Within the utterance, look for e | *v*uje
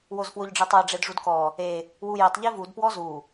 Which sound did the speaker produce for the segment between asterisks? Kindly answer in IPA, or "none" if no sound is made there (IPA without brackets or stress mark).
w